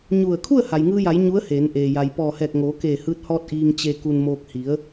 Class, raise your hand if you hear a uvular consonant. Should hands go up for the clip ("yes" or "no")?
no